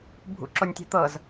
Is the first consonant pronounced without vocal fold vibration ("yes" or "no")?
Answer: no